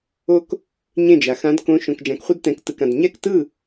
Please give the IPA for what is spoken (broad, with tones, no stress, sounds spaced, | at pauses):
o˧ k | ɲ ẽ˥˩ d͡ʒ a˩ x ã˧˥ d k õ˧˥ ʃ õ˩˧˩ k d͡ʒ ã˩˥ k χʷ ɯ˧ d t ɛ̃˩˥ k t ɯ˩ k ã˩ d ɲ ɛ˥˩ k t ɯ˥˩